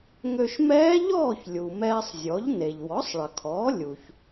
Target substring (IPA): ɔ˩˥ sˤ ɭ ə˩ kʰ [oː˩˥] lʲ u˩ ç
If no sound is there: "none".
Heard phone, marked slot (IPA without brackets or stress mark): ɔː˩˥